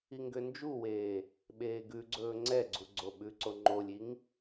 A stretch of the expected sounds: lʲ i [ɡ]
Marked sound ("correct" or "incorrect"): incorrect